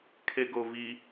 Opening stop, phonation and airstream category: aspirated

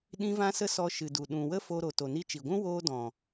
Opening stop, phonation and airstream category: implosive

